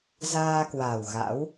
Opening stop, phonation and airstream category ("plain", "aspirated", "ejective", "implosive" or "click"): plain